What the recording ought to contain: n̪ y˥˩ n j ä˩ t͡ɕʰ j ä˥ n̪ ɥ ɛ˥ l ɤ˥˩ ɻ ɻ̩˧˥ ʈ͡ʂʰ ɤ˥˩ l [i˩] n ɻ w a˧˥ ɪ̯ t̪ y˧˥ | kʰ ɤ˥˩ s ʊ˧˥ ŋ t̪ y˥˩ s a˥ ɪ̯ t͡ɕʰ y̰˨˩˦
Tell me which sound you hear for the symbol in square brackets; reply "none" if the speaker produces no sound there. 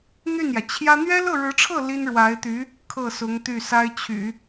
i˥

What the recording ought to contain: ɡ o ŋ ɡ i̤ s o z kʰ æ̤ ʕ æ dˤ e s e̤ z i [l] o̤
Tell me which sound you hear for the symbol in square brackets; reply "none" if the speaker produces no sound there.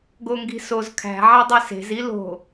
l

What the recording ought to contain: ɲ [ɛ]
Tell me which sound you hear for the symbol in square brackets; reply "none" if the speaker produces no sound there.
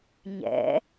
ɛ̰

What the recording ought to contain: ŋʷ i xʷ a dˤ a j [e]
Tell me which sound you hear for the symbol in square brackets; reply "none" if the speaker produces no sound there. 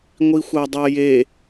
e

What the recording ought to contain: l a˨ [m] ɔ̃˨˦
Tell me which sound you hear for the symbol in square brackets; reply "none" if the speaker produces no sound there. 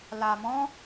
m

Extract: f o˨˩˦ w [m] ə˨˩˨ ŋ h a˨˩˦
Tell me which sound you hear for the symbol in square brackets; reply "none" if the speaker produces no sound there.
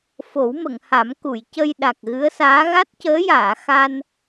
m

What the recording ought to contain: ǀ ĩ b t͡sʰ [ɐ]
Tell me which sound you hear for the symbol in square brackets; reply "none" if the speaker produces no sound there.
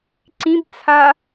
a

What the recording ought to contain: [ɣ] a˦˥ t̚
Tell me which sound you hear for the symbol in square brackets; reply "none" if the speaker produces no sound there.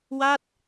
w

